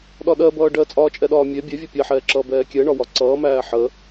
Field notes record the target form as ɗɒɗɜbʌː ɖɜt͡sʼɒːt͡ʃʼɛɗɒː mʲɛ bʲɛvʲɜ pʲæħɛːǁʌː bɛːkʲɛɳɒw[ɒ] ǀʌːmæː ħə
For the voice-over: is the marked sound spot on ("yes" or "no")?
yes